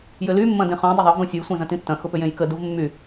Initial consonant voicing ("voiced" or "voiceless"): voiced